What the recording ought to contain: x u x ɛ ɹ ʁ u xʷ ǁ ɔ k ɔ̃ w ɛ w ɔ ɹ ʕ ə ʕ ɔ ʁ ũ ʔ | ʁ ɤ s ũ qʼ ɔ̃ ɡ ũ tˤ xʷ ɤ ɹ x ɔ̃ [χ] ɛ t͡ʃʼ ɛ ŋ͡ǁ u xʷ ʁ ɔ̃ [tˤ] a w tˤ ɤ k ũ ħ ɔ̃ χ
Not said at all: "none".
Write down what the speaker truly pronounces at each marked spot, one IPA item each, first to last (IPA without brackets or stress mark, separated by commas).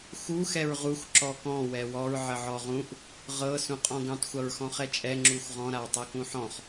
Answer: χ, ɾ